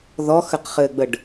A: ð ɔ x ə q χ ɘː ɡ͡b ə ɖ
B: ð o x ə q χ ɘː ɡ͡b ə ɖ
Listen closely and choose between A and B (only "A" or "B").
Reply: A